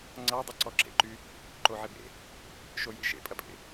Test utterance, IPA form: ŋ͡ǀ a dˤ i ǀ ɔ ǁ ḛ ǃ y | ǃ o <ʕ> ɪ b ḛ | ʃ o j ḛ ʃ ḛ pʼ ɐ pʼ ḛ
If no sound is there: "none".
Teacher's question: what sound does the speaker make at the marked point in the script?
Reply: ʕ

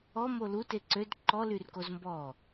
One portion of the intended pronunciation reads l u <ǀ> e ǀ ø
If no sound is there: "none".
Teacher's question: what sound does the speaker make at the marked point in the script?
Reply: t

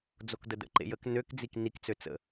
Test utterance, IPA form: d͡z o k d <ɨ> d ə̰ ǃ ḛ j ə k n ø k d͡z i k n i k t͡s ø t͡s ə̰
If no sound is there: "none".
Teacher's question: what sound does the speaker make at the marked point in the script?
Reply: ə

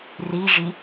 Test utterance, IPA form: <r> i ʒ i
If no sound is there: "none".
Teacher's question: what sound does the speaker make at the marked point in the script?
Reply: r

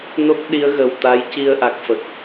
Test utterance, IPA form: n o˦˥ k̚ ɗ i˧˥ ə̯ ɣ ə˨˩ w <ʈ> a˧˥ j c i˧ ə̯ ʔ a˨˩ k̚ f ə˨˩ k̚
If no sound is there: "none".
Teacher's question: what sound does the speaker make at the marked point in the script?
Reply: t̪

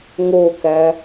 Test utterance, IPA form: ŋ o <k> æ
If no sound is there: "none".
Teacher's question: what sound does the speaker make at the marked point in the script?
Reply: k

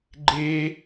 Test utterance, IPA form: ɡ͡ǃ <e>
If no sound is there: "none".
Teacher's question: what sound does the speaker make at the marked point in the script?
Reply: e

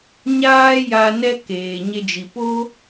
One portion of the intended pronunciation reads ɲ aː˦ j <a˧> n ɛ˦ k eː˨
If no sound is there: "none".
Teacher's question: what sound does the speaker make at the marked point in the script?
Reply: a˧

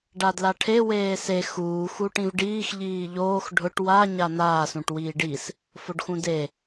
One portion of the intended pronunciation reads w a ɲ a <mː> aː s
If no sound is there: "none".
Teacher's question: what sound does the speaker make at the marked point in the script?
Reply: n̪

